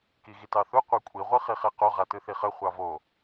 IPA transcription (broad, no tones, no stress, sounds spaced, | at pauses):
k i ɣ i t ɑ θ u qʷ a kʷʼ i ʁʷ ɯ χ i χ ɛ q o ʁ a t ɯ θ i χ ə χʷ ɑ v o